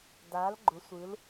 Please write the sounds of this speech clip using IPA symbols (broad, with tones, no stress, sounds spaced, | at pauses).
d a˧˥ l ɡ͡ǃ ʊ˧˥ sʷ ɯ˧˥ l